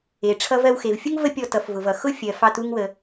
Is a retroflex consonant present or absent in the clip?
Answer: present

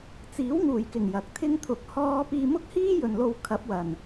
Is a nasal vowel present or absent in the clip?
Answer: absent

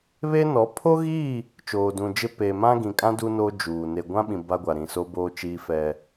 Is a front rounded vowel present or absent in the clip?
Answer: absent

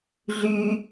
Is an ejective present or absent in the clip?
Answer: absent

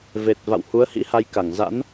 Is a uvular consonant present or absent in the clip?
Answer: absent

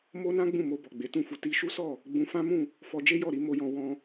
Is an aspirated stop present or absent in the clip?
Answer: absent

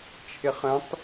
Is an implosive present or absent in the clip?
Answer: absent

